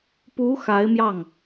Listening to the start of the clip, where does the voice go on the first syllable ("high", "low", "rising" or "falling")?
rising